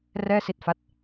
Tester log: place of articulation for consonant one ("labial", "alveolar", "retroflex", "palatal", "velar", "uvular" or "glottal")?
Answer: alveolar